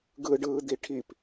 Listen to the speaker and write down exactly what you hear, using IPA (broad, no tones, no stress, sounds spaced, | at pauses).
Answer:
ɡ ɯ ɖ ɯː d̪ i ʈʰ i p